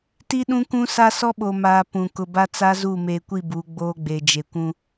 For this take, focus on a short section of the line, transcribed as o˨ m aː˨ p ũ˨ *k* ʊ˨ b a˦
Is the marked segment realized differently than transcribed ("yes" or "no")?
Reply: no